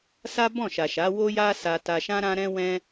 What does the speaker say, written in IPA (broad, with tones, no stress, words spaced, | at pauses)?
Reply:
sa˦bɔ̃˦˨ʃa˨ʃa˨˦ wo˦ja˦ sa˧ ta˧ʃã˦ɾã˦ɾɛ̃˦ wɛ̃˦